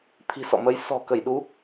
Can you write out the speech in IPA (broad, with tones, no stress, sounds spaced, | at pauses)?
t̪ʰ i̤˨˩ s ɔ̰˧˨ m ə˨˦ j s ɔ̤˨˩ k ə˧˩ j ɗ u˨˦